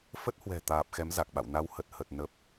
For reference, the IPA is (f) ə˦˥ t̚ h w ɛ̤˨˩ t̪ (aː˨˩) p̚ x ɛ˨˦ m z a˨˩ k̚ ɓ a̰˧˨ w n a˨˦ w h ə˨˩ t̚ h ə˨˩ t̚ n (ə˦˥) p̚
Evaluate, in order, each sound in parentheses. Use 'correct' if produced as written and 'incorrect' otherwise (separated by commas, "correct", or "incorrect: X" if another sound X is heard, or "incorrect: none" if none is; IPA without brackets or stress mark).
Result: correct, correct, incorrect: ə˨˩